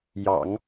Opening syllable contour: low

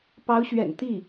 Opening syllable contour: rising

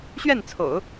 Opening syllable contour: falling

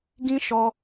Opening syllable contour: high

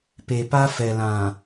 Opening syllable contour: low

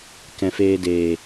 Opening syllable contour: low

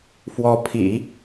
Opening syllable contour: rising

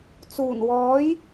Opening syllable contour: low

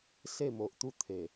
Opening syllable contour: falling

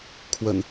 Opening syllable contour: low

